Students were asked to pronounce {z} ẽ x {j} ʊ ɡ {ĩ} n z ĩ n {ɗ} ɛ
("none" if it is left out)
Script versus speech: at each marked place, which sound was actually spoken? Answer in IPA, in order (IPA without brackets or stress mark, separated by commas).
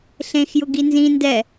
ɬ, j, i, d